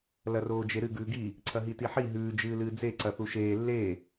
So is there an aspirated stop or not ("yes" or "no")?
yes